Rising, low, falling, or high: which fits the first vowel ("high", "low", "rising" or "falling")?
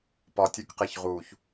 low